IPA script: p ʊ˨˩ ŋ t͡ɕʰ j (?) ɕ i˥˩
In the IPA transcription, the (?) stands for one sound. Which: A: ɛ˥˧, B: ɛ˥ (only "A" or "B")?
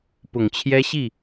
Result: B